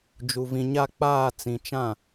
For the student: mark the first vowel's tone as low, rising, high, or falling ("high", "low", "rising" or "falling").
low